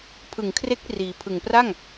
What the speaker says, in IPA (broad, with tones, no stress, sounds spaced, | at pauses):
pʰ ɯ˨˩ ŋ kʰ r e˦˥ k̚ r iː˩˦ pʰ ɯ˨˩ ŋ p r a˥˩ ŋ